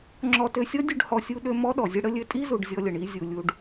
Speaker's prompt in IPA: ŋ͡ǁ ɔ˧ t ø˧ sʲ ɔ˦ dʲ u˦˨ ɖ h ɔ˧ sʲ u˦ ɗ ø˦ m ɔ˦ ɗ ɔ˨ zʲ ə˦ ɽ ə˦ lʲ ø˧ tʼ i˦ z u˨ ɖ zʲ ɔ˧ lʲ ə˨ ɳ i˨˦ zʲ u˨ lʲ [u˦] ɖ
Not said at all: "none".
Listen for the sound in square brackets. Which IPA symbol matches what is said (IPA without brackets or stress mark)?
u˧